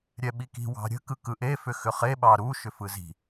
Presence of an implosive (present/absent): present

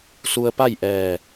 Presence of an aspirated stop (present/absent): absent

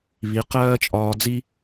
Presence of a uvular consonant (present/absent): present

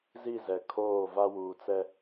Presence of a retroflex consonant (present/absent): absent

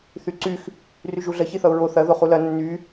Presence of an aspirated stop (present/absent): absent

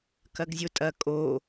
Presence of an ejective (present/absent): present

